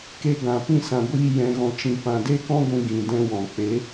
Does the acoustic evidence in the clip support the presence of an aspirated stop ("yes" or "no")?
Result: no